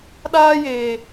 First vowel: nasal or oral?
oral